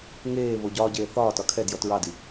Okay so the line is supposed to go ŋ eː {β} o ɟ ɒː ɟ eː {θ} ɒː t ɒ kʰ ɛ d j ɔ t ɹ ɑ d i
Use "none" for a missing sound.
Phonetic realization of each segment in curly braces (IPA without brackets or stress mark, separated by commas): β, θ